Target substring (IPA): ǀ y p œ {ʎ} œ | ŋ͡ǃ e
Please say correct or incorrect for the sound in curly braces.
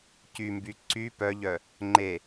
correct